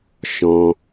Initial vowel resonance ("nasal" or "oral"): nasal